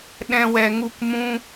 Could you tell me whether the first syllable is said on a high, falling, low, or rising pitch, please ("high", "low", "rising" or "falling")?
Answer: high